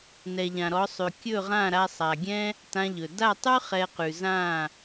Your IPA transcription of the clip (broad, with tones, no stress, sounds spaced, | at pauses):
n ɛ˨ ʎ ã˨ ɾ ɔ˨˦ sˤ ʉ˨ kʲ ɵ˦˨ ʁ ã˦˨ ɾ a˧ sˤ a˨ ɡʲ ɛ̃˦ | t ã˧ ʎ ɵ˨ d a˦˨ tˤ ʉ˦ χ ɛ˧ q ʉ˨ z ã˦˨